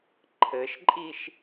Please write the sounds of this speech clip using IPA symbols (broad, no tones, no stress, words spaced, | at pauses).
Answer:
ǃʰɘʃǃʼiʃ